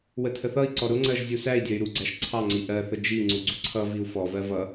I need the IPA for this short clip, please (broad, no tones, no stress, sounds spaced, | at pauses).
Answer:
w ə tʰ ə θ ʌ i̯ ǀ ɔ ɾ ʊ ŋ͡ǀ ɜ ʒ zʲ u s æ i̯ dʲ ɜ y̯ ɾ u ɡ͡ǀ æ ʃ ǀʰ ɑ ŋ͡ǀ i ʔ ɜ θ ə d͡ʒ i ŋ͡ǀ u ɡ͡ǀ u ǀʰ ʌ v i u̯ f ɔ v ɜ v ʌ